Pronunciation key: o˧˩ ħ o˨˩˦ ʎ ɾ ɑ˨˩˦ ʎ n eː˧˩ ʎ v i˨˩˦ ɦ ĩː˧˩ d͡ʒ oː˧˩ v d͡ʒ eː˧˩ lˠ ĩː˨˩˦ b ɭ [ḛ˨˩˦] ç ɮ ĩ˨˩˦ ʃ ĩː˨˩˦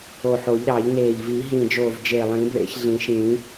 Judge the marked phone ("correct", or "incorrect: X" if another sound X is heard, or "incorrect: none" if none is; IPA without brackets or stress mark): correct